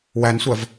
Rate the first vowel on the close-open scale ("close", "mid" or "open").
open